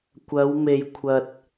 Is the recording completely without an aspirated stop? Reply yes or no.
no